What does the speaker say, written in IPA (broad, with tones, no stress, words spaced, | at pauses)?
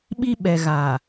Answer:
ɓi˦ɓɛ˨ ɣa˨